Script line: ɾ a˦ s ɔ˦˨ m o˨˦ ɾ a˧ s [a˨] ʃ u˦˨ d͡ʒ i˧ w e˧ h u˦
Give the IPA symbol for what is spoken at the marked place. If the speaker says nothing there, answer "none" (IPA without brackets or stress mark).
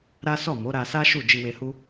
a˦